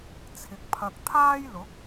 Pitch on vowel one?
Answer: low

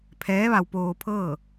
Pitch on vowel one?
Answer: rising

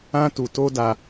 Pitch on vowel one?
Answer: high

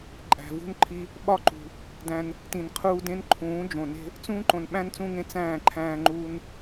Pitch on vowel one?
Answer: low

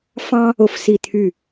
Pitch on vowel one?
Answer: high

